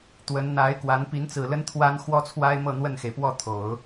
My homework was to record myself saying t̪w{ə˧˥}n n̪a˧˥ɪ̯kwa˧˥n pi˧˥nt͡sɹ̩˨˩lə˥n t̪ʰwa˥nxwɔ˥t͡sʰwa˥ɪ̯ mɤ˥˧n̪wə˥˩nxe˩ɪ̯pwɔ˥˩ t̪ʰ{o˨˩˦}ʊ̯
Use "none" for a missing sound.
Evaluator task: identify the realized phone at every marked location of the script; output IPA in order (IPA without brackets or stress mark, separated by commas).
ə˧˥, o˨˩˦